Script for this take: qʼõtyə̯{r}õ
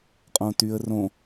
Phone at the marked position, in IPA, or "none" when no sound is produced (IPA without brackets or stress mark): r